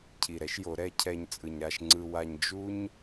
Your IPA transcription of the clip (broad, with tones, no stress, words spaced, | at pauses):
cʰi˨ɾɛ˦ʃjo˨˦ ɾɛ˦ cʰɛ˨ɲ t͡sʼɯ˨ɲ ɾa˨ʃ ŋ͡ǀɯ˨wa˨ɲ d͡ʒu˦ɲ